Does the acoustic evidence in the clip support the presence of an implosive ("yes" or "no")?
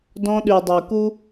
yes